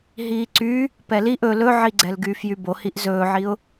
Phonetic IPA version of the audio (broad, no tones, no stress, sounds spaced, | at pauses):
ɦ iː ǀ y | p ɛ l i ʔ ɵ l ɵ ʕ i ɡ͡ǀ ɛ l ɡ yː f j y b o h i ʔ z ɵː ʕ i ʊ̯